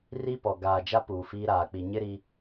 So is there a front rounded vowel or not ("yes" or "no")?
no